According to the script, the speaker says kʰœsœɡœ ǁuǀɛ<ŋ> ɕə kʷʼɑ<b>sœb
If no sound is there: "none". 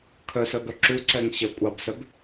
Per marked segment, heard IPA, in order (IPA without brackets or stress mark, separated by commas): ŋ, b